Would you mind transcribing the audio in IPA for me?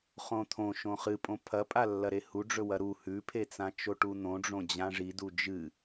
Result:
χõt̪ʰõʃõ χɨ pʼõpʰɐpʼa lːɐɾehuɖ͡ʐɵ wɐɾu hʉpʰet͡sã t͡ʃoʈun̪õɖ͡ʐõ d͡ʑãʐidu d͡ʒɨ

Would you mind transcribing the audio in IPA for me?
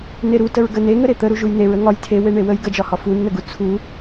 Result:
neɾutəɹ ɡəneŋə ɾet̪ə ɾuʒujneɹ əŋɒj tʰe weɳewəj ɡəd͡ʒɒhɒ funːəɡu t͡sʰu

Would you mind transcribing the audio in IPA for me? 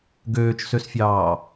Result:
ɡøːt͡ʃsøsfʲɑː

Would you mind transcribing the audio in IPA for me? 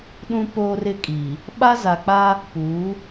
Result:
ɗũ˦poː˦rɪ˦kʼiː˨ | ɓa˦za˨k͡paː˦ | puː˨˦

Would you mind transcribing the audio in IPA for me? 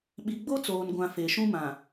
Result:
ɓi˨ɡ͡bo˦ t͡soː˨nɡʷã˨ fe˨ʃũ˦mã˨

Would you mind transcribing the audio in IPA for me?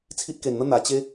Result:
t͡sʰi˦t̚ke˧nn̪ə˦ n̪a˧t͡ɕe˦

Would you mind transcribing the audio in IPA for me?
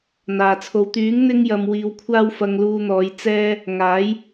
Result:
n̪aː˨t͡sʰo˧w t̪yː˨˥ŋ n̪ɪ˥ŋjɐ˧m wiː˧wkʷʰaː˥w fɐ˧ŋluː˧n̪ɔː˨˧j t͡sɛː˥ | ŋaː˨˥j

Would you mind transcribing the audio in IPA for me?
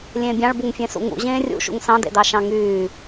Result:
lʲẽːbʲɑ̃ɭ buŋfʲẽsṵŋṵ ʑẽːrʲṵ ʃṵŋsɑ̃ dḛdɑʃɑ̃ŋyː

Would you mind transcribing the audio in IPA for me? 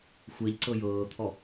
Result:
xʷɛʎǀɤ jɤːt̪ʰɔ

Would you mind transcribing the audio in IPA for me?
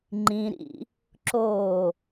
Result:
ŋ͡ǃĩɾḭ | ǁo

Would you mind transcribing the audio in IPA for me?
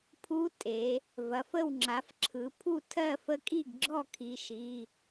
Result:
pʰu˧˥tʼe˩˧ | vɐ˩˧˩fə˥˩w ŋ͡ǁa˩˥fǁʰɯ˩˧ pʰu˥˩ tʰɜ˥˩fə˧˥kʼi˥˩ɡ ɡ͡ǁɔ˥˩kʰi˩˧ʃi˩˧˩

